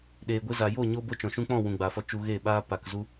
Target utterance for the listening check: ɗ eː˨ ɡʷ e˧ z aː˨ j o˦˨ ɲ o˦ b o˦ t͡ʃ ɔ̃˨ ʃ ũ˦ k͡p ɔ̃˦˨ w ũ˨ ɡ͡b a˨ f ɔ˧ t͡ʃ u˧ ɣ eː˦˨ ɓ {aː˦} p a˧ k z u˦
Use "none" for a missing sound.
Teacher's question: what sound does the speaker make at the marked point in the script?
aː˦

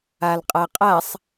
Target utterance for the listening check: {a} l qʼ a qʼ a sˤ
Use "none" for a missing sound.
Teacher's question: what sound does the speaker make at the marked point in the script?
a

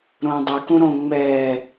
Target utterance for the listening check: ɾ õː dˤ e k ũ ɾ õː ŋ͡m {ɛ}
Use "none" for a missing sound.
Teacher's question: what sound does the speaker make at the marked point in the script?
ɛː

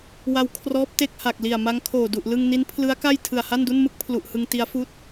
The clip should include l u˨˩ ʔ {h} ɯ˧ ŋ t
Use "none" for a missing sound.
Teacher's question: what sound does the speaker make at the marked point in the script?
h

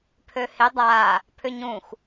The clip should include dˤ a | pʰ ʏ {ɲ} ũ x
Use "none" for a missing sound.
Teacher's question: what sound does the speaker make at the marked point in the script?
ɲ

